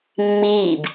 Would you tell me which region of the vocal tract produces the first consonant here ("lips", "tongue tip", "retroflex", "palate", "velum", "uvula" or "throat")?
lips